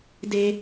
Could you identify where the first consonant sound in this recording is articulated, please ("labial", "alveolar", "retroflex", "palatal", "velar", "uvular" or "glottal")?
alveolar